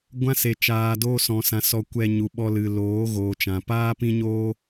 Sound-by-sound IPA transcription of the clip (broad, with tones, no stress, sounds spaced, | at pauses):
ɡʷ ã˦ s e˨ t͡ʃ aː˨ d oː˧ s ɔ̃˨ s ã˨ s ɔ˧ kʷ ɛ˧ ɲ u˨ ɓ ɔ˧ l ɨ˨ l oː˨˦ ɣ oː˨ t͡ʃ ã˨ p aː˦ p ĩ˦ ɲ oː˦